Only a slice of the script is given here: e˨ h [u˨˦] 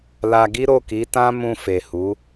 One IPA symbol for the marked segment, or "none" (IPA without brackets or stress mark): u˨˦